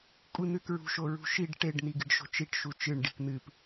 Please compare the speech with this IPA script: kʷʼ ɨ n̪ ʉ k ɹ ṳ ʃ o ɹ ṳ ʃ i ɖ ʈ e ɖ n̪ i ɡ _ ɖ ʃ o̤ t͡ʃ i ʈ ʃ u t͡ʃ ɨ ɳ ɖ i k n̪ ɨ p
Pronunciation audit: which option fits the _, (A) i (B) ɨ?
B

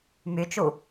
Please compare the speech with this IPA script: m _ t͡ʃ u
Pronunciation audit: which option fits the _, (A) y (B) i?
A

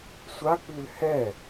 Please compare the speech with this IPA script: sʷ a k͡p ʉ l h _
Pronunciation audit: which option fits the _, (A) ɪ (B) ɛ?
B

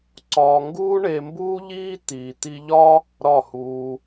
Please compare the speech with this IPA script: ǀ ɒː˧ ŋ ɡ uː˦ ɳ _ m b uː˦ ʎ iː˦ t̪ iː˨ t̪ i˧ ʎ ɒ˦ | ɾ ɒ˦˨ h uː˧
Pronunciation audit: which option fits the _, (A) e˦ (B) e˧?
B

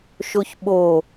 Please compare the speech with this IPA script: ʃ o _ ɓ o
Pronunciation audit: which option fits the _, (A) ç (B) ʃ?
A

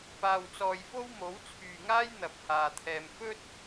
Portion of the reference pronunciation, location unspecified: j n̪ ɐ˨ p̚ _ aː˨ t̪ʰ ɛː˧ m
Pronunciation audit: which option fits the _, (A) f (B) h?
B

